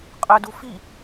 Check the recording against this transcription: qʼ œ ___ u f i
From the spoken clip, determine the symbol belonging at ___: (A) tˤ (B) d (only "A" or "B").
B